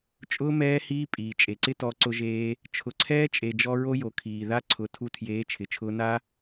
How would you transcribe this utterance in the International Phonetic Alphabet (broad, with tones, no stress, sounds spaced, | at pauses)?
t͡ʃʼ ʊː˧ m ɛː˧ h iː˧ pʼ iː˨ t͡ʃʼ e˨ ǀ ɪ˦ t ɔ˧ ǀ ʊ˧ ʒ eː˧ | t͡ʃʰ ʊ˨ ǀʰ ɛː˧ t͡ʃʼ e˨ d͡ʒ ɔ˧ ɹ o˦ j o˨ kʰ iː˨ ð a˧ ǀʰ ʊ˨˦ tʰ u˧ tʰ j eː˨˦ t͡ʃʰ ɪ˨ t͡ʃʰ ʊː˧ n a˦